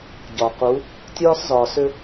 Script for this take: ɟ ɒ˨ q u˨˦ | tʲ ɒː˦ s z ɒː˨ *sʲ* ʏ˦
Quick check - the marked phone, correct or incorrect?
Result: incorrect: s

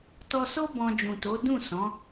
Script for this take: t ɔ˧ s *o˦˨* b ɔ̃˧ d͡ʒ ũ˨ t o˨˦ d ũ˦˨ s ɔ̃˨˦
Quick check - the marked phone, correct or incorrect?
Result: incorrect: o˦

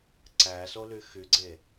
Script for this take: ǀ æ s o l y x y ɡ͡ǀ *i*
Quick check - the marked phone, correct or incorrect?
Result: incorrect: e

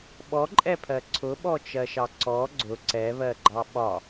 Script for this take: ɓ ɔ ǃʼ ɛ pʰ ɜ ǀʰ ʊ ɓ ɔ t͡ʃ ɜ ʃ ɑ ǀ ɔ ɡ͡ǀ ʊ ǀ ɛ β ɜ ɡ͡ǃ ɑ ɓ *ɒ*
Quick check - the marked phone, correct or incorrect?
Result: correct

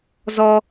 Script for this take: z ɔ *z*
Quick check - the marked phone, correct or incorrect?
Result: incorrect: none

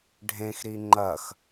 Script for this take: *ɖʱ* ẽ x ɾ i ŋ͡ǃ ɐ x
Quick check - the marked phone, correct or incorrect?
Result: correct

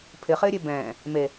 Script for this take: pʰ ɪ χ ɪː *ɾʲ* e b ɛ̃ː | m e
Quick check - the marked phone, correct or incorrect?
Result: correct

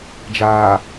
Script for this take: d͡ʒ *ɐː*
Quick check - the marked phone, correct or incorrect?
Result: incorrect: aː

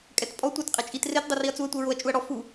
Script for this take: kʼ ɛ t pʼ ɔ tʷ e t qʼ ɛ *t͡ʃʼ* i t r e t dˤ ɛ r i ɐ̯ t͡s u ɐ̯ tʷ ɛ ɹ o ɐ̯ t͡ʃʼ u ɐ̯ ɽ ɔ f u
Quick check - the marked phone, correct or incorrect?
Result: correct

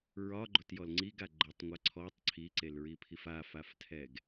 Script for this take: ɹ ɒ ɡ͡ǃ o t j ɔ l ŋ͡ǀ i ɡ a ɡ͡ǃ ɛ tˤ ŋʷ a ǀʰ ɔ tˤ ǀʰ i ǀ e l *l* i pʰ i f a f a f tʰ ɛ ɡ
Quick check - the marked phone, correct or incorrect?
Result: incorrect: ɹ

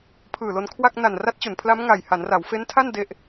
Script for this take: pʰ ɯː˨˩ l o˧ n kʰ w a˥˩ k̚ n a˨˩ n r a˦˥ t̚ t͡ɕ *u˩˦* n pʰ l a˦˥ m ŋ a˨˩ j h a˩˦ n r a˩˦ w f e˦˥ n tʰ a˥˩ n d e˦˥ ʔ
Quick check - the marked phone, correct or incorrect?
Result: correct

